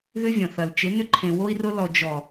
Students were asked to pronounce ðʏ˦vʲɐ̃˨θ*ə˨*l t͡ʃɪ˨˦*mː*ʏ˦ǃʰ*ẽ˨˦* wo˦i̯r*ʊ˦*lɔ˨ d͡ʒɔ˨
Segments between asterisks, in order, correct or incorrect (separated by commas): incorrect, incorrect, incorrect, correct